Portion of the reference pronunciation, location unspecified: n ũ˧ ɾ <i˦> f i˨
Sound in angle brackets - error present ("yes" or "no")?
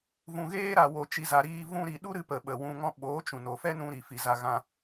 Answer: yes